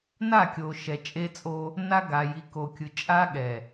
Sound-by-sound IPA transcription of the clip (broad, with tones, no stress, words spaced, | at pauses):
na˦˨kʲo˨ ʃɛ˨t͡ʃʼe˦t͡sʼo˦ | na˦ɡa˨ ji˨ko˨kʲɯ˨ t͡ʃʼa˦ɠɛ˨